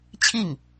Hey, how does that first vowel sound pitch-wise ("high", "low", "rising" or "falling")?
falling